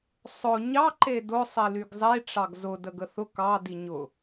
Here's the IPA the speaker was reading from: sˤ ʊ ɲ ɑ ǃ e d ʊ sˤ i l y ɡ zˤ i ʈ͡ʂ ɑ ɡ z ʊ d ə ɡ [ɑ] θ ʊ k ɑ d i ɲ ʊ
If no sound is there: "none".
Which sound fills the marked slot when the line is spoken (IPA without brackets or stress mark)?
ə